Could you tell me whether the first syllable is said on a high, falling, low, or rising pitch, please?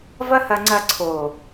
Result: high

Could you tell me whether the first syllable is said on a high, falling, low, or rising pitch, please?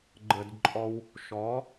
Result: low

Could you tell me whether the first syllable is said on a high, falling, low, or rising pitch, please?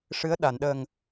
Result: rising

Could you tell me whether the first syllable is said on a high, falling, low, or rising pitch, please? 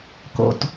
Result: low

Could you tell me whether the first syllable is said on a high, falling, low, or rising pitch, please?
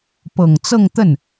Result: low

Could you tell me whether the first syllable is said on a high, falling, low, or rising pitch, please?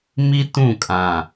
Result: high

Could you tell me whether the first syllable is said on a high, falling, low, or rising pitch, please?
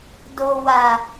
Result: low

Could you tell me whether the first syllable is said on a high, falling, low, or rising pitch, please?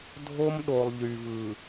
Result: high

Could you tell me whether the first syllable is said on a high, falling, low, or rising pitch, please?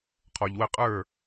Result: low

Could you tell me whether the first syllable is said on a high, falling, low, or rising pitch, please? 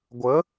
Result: rising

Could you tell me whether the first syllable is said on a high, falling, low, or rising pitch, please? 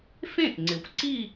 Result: falling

